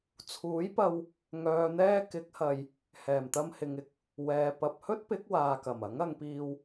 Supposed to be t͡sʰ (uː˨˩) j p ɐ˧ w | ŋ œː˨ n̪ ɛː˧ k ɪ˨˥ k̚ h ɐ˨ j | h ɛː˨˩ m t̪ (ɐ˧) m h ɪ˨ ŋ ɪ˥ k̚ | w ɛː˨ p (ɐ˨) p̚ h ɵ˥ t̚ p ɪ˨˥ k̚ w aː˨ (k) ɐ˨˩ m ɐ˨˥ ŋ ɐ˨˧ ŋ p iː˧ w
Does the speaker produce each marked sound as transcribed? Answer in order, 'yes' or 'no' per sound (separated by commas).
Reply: no, yes, yes, yes